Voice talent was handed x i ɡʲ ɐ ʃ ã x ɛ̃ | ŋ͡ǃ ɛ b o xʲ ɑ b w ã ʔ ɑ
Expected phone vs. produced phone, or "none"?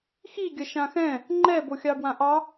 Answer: none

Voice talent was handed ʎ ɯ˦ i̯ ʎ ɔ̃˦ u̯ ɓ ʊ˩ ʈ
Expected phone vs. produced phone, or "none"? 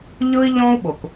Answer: ʈ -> k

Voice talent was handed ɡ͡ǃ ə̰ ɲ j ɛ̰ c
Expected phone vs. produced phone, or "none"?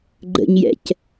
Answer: none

